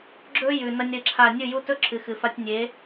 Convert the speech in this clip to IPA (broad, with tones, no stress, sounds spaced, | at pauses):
ɡ͡ǁ ɵ˦ j ʉ˨ n ɐ˦ nʲ ɾ ɨ˧ ǁʰ a˦˨ nʲ ɨ˦˨ j u˦ t ɵ˦ ǁʰ ɨ˨ x ɨ˨ f a˧ tʲ nʲ e˨˦